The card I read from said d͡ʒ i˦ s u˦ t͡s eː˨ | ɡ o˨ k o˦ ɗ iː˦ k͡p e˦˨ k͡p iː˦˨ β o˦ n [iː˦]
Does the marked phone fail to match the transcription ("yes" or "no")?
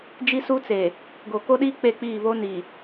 yes